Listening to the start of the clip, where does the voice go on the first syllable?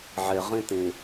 low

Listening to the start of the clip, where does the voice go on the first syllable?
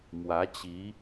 rising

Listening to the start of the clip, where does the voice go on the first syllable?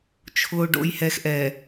low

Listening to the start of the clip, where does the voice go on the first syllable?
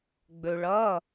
low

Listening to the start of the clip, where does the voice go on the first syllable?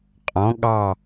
rising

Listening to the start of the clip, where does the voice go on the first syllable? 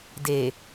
low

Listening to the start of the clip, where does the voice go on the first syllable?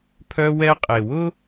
high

